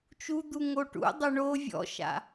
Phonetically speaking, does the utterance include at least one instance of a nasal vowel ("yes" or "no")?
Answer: no